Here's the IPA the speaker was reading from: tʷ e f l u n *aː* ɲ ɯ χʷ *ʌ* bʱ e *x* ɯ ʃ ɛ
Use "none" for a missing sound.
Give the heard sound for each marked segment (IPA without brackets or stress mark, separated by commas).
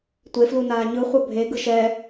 aː, ʌ, ɡ